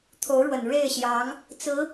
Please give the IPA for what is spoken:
t̪ʰ o˧˥ ʊ̯ ɻ w ə˨˩ n ɻ e˥˩ ɪ̯ ɕ j ɑ˧˥ ŋ | t͡s ɹ̩˧˥

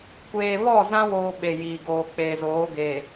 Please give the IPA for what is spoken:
kʷ eː˨ β ɔ˦˨ z ã˦ w oː˦ ɓ e˨ j iː˨ ɡ oː˨ k͡p eː˨ z oː˨˦ ɡ eː˨

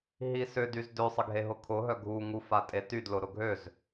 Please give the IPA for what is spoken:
ɦ i s ʏ d y z d ø sˤ ɪ ɡʱ e ɦ ʊ kʰ ʊ ɦ œ ɡʱ u ŋ u f a tʼ e t y d l ʊ ɾ ʊ ɡʱ ø z

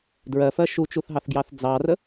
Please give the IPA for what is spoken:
d ɹ ɜ f ɜ ʃ u t͡ʃ u θ ɦ ɑ θ ɡ j ɑ θ d͡z ɑ r ə

